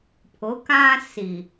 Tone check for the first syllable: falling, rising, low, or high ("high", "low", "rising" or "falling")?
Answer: rising